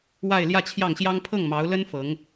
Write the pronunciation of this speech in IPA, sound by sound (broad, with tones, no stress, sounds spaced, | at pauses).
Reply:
w a˥˧ ɪ̯ l j ä˥˧ t͡ɕʰ j ɑ˥˩ ŋ ɕ j ɑ˥ ŋ pʰ ɤ˥˩ ŋ m ɑ˧˥ ʊ̯ l ə˥ n f ɤ˧˥ ŋ